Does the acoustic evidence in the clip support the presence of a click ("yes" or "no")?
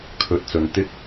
no